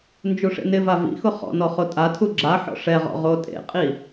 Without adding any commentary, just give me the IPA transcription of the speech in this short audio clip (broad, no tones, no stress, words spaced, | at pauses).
nd͡ʒuʂḛnɪva vḭxʊ χɔ̰ nɔχotʼatʰu ɡ͡ǁaħɔ̰ ʂɛʁɔ̰ ʁotʼḛqʼi